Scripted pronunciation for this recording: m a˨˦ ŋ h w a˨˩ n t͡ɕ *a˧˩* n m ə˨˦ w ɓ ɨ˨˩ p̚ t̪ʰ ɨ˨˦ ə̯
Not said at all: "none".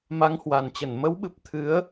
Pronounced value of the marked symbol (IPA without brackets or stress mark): ə˧˩